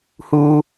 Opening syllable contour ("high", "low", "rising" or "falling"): low